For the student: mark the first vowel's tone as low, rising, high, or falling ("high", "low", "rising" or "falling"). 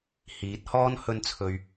rising